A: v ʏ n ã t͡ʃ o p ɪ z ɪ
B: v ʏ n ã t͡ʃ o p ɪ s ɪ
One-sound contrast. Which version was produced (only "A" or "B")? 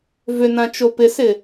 B